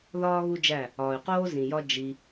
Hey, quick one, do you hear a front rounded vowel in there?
yes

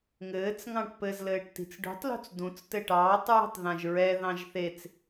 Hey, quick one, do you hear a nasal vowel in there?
yes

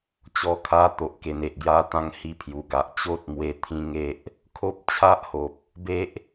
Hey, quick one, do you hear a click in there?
no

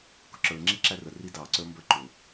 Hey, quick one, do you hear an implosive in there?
no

